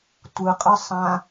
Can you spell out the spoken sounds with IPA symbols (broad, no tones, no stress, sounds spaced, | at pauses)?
tʷ ɯ qʼ ɯ sˤ ã